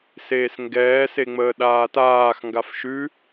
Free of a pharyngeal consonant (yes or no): yes